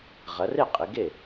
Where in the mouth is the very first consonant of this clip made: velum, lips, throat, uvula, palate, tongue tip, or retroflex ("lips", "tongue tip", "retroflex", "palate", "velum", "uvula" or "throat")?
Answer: uvula